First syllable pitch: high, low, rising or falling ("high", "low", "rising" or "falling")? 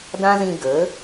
high